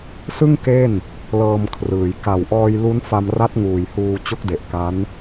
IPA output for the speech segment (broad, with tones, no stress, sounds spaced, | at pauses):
s ɯ˥˩ ŋ k e˥˩ n | l ɤː˧ m kʰ r ɯː˩˦ j k a˨˩ w ʔ ɔː˧ j l u˦˥ n f a˧ m r a˦˥ t̚ ŋ uː˨˩ j h uː˧ t͡ɕ o˦˥ k̚ d e˨˩ ʔ k a˦˥ n